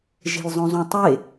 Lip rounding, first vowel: unrounded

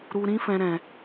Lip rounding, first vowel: rounded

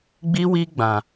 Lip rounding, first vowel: unrounded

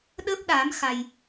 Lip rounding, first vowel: unrounded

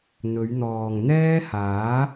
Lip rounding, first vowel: rounded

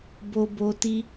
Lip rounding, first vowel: rounded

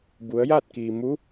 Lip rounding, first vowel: rounded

